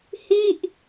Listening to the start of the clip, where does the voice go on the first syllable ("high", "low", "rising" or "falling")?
falling